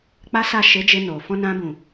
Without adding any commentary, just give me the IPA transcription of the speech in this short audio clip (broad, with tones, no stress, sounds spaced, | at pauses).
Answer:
k͡p a˦ s a˦˨ ʃ e˨˦ d͡ʒ e˧ n o˨ f ɔ̃˧ n ã˧ b ũ˨